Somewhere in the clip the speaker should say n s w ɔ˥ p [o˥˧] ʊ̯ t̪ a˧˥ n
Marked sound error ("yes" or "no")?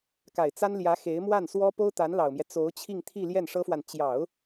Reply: yes